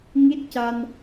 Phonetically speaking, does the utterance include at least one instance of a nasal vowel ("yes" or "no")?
no